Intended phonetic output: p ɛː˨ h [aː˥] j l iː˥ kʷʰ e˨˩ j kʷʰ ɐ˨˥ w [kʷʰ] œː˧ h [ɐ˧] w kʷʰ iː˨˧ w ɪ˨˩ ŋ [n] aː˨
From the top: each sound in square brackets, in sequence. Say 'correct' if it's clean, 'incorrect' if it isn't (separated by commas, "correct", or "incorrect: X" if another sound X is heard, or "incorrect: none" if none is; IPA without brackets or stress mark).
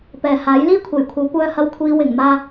incorrect: aː˨˥, incorrect: kʷ, correct, incorrect: m